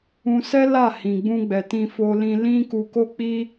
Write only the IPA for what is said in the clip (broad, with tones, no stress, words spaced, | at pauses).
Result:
ũ˧sɛ˦ la˦˨hĩ˨ɡ͡bũ˧ɡ͡bɛ˨ tĩ˧fo˧lĩ˧lĩ˦ ku˧ko˦ k͡pi˦